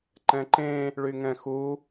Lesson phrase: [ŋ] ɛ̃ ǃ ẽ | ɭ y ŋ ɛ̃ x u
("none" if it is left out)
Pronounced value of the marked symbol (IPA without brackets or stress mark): ǃ